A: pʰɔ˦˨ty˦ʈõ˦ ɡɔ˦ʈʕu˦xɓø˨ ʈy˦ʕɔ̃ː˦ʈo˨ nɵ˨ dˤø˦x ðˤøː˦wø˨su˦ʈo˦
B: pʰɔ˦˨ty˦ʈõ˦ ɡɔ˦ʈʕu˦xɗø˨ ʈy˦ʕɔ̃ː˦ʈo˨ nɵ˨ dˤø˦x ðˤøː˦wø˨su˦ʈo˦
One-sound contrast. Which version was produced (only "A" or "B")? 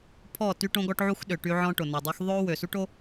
B